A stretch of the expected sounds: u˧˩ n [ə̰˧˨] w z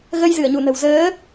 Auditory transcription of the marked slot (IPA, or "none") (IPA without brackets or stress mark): ə̤˨˩